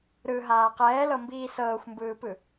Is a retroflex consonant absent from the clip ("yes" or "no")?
yes